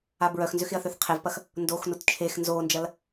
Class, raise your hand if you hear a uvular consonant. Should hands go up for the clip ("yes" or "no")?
yes